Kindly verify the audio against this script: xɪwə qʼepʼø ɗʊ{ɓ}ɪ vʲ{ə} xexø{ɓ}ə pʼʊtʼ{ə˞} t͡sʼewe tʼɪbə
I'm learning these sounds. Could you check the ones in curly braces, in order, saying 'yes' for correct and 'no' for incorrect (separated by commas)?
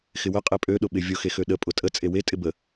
yes, no, no, no